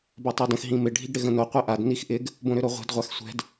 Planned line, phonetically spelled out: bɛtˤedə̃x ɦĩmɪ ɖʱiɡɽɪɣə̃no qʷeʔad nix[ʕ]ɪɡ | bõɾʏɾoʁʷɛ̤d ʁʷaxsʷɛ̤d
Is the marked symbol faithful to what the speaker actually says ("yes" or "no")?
no